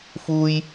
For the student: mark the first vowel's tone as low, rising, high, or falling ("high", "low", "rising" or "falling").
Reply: high